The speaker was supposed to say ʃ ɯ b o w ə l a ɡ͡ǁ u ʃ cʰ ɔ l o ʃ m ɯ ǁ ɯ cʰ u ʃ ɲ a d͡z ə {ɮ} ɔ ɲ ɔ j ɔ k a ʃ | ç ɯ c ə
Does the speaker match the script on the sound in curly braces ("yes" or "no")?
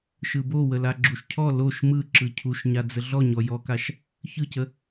yes